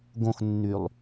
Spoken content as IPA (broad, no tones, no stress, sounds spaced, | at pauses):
ɡ õ x nː y lˠ